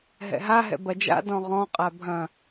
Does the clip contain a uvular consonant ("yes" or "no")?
yes